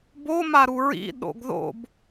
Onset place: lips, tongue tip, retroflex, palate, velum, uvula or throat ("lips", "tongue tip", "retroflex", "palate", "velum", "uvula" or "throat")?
lips